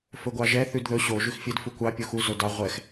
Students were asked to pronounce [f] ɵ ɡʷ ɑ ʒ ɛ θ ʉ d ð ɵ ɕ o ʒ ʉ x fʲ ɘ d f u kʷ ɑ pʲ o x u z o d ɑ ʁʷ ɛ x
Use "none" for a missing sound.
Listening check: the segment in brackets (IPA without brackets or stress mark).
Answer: f